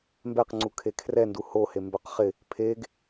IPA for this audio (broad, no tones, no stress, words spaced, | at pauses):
mbɛqŋ͡ǀu kʰekʰrɛndu hohe mbœqχɪ | pʰeɡ